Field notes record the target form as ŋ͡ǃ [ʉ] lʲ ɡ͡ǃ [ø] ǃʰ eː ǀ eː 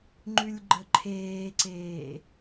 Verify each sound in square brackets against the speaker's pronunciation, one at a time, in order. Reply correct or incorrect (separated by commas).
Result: correct, incorrect